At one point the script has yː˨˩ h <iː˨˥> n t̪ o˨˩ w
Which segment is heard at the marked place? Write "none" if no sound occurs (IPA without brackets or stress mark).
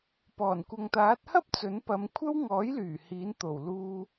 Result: iː˨˥